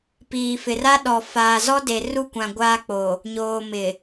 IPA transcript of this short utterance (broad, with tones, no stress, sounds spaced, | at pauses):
p iː˨ f ɪ˨ r a˦ ɗ ɔ˨ f aː˨ z ɔ˦ d e˨ r u˦˨ kʷ ã˨ ɡʷ aː˦ k͡p o˨ | ɲ oː˨ m ɪ˨